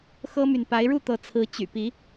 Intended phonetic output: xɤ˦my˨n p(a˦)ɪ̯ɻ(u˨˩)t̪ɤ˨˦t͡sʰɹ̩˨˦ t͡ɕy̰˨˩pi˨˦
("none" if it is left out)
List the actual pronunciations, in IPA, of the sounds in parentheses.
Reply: a˨˦, u˥˨

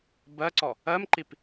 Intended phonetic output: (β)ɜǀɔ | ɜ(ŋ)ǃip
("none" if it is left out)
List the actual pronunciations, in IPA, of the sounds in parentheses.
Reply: b, m

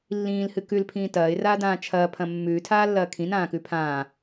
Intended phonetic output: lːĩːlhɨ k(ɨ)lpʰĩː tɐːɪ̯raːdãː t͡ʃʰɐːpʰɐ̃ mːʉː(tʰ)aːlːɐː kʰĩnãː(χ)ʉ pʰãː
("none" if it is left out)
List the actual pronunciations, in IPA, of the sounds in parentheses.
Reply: ʉ, tʰ, k

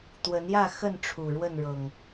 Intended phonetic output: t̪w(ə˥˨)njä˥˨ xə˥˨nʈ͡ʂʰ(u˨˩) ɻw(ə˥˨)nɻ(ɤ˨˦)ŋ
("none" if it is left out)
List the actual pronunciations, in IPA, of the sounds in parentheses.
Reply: ə˨˦, u˨˩, ə˥˨, ɤ˨˩

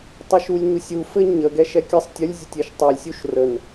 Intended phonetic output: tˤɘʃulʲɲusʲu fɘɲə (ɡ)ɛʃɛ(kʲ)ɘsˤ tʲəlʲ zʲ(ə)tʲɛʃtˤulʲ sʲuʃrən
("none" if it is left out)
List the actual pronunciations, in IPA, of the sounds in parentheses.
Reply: ɡ, kʲ, ə

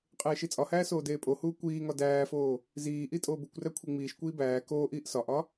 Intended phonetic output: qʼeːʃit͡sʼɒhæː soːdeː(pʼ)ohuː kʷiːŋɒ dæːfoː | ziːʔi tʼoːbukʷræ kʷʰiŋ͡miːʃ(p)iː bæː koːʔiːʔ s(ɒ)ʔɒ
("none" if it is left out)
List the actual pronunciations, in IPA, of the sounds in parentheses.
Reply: pʼ, kʷ, ɒ

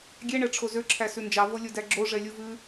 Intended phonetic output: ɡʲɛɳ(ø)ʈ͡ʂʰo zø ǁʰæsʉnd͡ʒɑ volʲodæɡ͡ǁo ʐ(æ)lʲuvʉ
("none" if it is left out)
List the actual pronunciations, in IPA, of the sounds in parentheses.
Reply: ɛ, ɛ

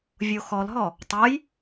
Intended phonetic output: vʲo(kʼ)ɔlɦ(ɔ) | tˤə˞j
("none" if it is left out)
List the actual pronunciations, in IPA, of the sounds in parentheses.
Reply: x, ɔ

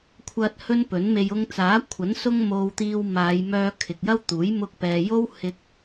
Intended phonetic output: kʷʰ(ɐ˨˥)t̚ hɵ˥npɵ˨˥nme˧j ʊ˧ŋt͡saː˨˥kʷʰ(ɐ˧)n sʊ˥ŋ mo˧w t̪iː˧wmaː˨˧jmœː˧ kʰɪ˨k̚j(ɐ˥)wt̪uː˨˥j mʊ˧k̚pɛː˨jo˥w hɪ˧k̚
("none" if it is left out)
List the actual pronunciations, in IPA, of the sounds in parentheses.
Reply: ɐ˧, ɐ˨˥, ɐ˥

